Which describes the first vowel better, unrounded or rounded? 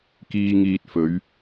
unrounded